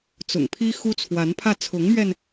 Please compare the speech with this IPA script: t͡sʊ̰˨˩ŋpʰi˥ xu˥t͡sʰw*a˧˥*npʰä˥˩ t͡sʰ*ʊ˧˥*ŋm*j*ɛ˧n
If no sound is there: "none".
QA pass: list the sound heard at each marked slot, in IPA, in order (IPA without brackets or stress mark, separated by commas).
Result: a˧˥, ʊ˧˥, ɥ